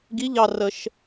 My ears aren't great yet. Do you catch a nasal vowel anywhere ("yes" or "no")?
no